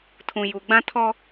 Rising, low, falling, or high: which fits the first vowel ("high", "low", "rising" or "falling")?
low